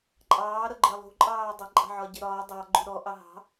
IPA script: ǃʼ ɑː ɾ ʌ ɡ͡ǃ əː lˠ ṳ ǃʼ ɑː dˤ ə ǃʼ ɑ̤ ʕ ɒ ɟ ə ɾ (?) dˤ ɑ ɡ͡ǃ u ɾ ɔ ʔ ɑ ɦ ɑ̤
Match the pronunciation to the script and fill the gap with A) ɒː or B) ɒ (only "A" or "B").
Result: A